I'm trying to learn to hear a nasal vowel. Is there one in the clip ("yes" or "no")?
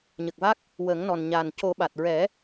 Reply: no